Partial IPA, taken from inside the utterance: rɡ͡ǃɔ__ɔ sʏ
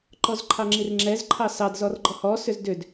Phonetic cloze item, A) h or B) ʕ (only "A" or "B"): A